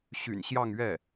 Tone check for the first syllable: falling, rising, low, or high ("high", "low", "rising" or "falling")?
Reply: low